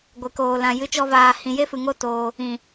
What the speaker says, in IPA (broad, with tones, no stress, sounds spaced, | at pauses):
ɡʷ e˨ k oː˨ l ã˨ j ɨ˧ t͡ʃ ɔ˧ v aː˨ h ĩ˨ j e˦ f ɨ˨ ŋ o˦˨ t oː˧ | ĩ˨